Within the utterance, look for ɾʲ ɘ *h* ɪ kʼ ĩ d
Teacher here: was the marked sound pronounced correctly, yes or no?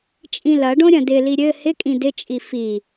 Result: yes